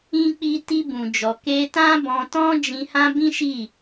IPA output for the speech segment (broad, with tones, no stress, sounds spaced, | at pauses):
ĩ˧ k͡p i˧ t i˧ b ũ˨ d͡ʒ ɔ˨ k e˧ t ã˦ b ɔ̃˧ t ɔ̃˦ d͡ʒ ĩ˧ h ã˦ b ĩ˦ ʃ i˦˨